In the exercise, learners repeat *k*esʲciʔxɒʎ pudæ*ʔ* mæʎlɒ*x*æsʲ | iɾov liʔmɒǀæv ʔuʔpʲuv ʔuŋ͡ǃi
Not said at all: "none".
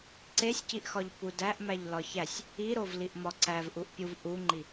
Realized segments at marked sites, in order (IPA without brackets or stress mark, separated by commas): ǀ, ʔ, ç